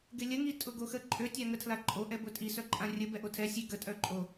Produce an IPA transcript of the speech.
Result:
ɡ ɪ lʲ ə ŋ i tʼ ʊ ɡ o x ə ǃʼ ø tʲ a ŋ ə tʰ l a ǃʼ o ʔ ɛ b ʊ tʼ i s œ ǃʼ ã rʲ ə b ɛ ʔ o tʰ ɛ sʲ e ɡ ə tʼ œ ǃʼ o

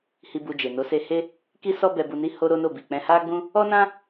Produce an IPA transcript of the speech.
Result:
h i˧ b u˧ d͡ʒ e˨ n o˨˦ s e˧ h e˦ | k i˦ s ɔ˦ b ɛ˧ b u˧ n i˦ h o˧ ɾ o˦ n o˦˨ b i˨ k͡p ɛ̃˧ h a˦ ɡ͡b ũ˦ | ɔ˦ n ã˦

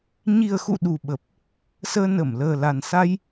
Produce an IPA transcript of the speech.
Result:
ɲ i˨˩ ə̯ x ṵ˧˨ ɗ u˨˩ ɓ ə˨˩ p̚ | s əː˧ n ə˧˩ m l əː˨˩ l a˨˩ n s a˧ j

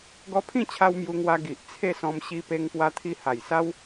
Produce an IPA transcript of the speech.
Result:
ɡ ɔ˧ pʰ ĩ˥˧ t͡ɕʰ a˧ w m j u˧ ŋ w a˧ ɡ i˨ ʔ t͡sʰ e˥˧ s ɔ̃˧ m ɕ i˧ p e˧ ŋ p w a˧ t̪ʰ i˧ h a˨˩ j s a˦ w

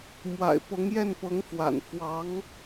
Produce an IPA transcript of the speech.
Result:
m w a̰˨˩ ɪ̯ p ɤ˧˥ ŋ j ɛ˥˩ n p ɤ˧˥ ŋ f w a̰˨˩ n f w ɑ˧˥ ŋ

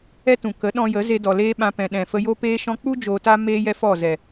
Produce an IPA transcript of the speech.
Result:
ɛ˦ t ũ˨ k ə˨˦ ɗ ɔ̃˧ j ə˨˦ z e˧ d ɔ˨ l eː˦ ɓ ã˧ p ɛ̃˨ ɗ ɛ̃˨ f ə˧ j o˦ p eː˦ ʃ ɔ̃˦ k͡p u˦ d͡ʒ oː˧ t a˦ m eː˦ j ɛ˦ f ɔ˦˨ z ɛ˨

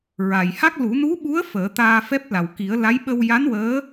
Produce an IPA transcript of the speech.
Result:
ɹ a˨˩ j h a˦˥ k̚ l u˨˩˦ n u˧˥ ɓ u˧˥ ə̯ f əː˨˩˦ t̪ aː˧ f ɛ˦˥ p̚ l a˨˩ w k i˨˩˦ ə̯ l a˧˥ j ɓ ə˧ w j a˧˥ n w əː˧˥

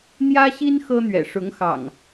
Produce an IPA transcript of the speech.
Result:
n̪ j ä˦ ɕ i˦ n x ɤ˦ n̪ ɥ ɛ̰˨˩ ʂ ʊ˨˦ ŋ x ɑ̰˨˩ ŋ

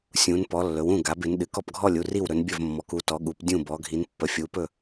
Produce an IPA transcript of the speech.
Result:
sʲ ũ˩˧ n p ɔ˩˧ lː ɵ˩˧ w ũ˥˩ ɡ a˩˧ b ɪ˩˧ n ɗ ɨ˩˧ k ɔ˥˩ p ɡʱ ɔ˥˩ lʲ u˥˩ r i˥˩ w ɾ ɵ˩˧ n bʲ ɵ˥˩ v mː ɔ˩˧ k u˩˧ t ɔ˩˧ ɠ u˩˧ p dʲ ũ˥˩ b ɔ˩˧ ɡʱ i˩˧ n pː ə˩˧ fʲ u˩˧ p ɵ˥˩

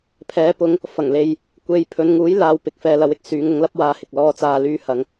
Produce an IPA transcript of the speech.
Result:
pʰ ɛː˨˧ p ʊ˨˧ ŋ | f ɐ˨˩ ŋ l e˨ j | kʷ e˨˧ j pʰ ɵ˨˧ n ŋ uː˨˥ j l aː˨˧ w p ɪ˨ k̚ f ɛː˧ l ɐ˨˧ w ɪ˨ k̚ s yː˨˧ ŋ ʊ˨˧ ŋ l ɐ˥ p̚ w aː˧ h ɪ˨ k̚ l ɔː˧ t͡s aː˧ l yː˧ h ɐ˨˧ ŋ

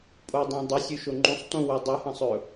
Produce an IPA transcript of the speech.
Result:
pʼ o dˤ ẽ dˤ i sʲ ʉ ʃ o ŋ͡ǃ ũ sˤ t ũ w ɵ dˤ ɨ h ɐ̃ sˤ ɵ

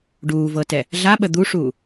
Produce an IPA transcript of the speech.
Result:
ɖ uː v ɤ t ɛ | ɮ a ɓ ə d̪ u ʂ uː

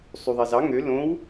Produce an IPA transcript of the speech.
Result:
sˤ y ðˤ e z ɑ ŋ ø l õ w

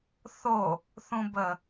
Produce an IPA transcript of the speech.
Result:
θ o | θ ũ b ə

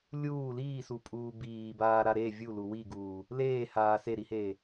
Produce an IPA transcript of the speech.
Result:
lʲ uː l iː s u pʼ uː b iː b aː ɾ a ɾ e vʲ u l u w i ɡ uː | l eː h aː s e ɾ i h eː

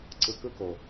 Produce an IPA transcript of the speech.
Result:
ǀ ɯ˨ k ɯ˦ k o˨

